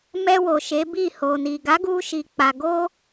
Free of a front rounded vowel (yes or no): yes